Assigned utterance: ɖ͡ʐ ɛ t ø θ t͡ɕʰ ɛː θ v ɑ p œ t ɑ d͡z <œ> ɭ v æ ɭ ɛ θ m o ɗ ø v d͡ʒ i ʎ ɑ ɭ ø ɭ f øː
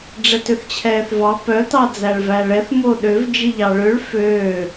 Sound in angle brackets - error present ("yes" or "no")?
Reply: yes